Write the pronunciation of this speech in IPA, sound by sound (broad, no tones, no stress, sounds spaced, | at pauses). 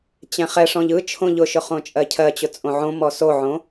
t͡ɕ ɛ̃ χ ɛ ʂ ɔ̃ ʎ ɯ t͡ʃʰ õ ʎ ʊ ʃ ʊ χ õ t͡ʃʼ ɜ cʰ ɜ t͡ɕ ʊ t͡sʼ õ ʕ õ m ɔ s o ʕ õ